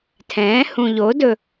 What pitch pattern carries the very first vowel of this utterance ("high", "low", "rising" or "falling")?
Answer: rising